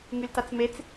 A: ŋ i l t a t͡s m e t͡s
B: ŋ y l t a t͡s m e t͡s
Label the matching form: B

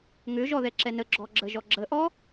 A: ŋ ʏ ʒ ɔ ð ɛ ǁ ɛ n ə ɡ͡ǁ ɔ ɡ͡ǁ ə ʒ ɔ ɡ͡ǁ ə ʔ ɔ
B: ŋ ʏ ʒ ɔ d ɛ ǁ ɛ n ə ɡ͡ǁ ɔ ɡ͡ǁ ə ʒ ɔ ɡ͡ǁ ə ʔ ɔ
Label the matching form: A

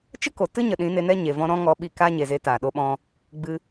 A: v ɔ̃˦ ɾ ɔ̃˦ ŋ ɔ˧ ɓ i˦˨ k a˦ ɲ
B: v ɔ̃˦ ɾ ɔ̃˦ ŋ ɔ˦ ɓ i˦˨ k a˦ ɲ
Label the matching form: A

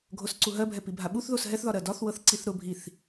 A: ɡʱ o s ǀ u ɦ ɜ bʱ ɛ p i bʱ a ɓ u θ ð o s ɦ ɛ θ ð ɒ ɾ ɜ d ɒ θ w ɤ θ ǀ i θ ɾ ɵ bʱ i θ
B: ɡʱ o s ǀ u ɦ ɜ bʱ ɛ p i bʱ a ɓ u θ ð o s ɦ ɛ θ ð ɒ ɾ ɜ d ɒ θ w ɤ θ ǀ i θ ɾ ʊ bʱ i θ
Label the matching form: B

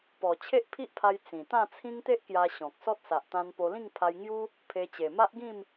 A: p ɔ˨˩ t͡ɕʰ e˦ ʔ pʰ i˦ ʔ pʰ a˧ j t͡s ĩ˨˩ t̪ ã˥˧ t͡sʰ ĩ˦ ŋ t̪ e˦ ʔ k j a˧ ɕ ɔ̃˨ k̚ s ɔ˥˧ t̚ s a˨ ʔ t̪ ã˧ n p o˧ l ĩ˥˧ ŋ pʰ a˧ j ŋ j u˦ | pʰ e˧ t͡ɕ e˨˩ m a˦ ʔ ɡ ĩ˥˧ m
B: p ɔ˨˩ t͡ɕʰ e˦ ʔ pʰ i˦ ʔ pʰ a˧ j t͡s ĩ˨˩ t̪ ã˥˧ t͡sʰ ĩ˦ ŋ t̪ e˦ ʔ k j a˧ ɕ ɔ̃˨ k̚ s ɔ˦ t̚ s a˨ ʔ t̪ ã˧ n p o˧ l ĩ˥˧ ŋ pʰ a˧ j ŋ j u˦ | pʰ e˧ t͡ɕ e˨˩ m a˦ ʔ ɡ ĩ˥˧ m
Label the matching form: B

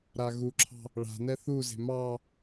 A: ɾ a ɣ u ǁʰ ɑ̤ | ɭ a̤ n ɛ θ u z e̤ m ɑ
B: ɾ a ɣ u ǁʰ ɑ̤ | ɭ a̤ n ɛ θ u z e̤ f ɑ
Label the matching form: A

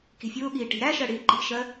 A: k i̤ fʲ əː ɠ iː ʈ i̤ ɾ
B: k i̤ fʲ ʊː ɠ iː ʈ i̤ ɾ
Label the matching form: B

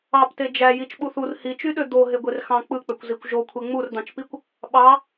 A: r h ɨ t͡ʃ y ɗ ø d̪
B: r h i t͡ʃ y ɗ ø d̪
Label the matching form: B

